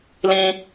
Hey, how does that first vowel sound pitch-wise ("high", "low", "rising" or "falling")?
high